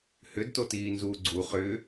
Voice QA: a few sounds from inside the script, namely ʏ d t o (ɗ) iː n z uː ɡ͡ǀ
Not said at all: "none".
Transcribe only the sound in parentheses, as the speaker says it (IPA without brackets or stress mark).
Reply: t